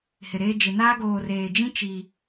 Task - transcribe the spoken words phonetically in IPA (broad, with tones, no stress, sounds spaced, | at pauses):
h ɪ˨ ɾ eː˦ d͡ʒ ɪ˨ n aː˦ ɡ oː˨ r eː˨ d͡ʒ ĩ˦ t͡ʃ i˦